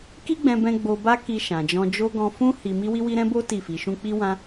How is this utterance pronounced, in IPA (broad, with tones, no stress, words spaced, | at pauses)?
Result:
ki˦ɡ͡bɛ̃˧bɛ̃˧ ɡ͡bo˧ba˦ki˧ ʃã˨d͡ʒɔ̃˧d͡ʒo˦ ɡɔ̃˧fũ˦ hi˧mi˦ wi˦wi˦ ɾɛ̃˦bo˦ ti˦˨fi˨˦ʃũ˦ k͡pi˦wã˦